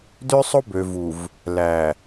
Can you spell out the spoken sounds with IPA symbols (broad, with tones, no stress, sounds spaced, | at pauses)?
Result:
d ø˦ sˤ o˦ b ø˨ v u˨ v | l æ˨